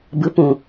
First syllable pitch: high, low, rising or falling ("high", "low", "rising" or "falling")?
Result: rising